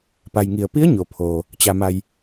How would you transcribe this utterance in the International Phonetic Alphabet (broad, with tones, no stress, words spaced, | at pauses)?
pa˩jŋi˩ə̯ pi˧˥ə̯ ɲo˩pʰoː˩ | t͡ɕa˩ma˩j